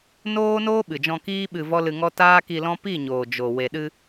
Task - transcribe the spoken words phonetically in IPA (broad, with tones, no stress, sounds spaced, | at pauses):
n oː˦ n oː˦ ɓ ɨ˨ d͡ʒ ɔ̃˧ k iː˦ ɓ ɨ˧ v ɔ˦ l ɨ˧ ŋ ɔ˦ t aː˦ k i˧ l ɔ̃˦ p i˦˨ ɲ oː˨ d͡ʒ o˨ w e˨ ɗ ɨ˧